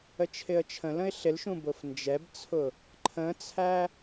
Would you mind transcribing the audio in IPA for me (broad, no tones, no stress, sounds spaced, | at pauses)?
ə t͡ʃʰ ɪ ə̯ t͡ʃʰ ə̃ l ə̃ ɪ̯ ɬ ɪ l ʃ ũ b ʊ f n d͡ʒ ɛ b t͡sʰ ʊ | ǃʰ ə̃ t͡sʰ æ